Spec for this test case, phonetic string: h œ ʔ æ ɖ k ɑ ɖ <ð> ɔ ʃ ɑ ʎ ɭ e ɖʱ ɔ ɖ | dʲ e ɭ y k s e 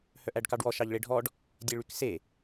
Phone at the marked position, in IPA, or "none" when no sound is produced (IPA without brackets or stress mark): w